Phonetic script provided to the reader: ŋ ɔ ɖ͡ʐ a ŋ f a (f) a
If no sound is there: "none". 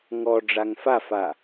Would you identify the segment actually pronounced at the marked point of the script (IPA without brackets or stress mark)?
f